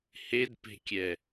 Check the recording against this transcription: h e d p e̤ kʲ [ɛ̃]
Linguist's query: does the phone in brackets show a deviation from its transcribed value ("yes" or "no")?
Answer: yes